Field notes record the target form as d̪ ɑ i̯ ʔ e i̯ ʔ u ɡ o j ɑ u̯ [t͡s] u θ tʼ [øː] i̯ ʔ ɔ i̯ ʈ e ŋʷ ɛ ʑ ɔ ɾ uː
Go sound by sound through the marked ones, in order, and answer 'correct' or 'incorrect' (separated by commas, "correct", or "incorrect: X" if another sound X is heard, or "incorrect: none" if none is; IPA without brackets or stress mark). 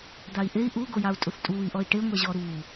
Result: incorrect: tʼ, incorrect: uː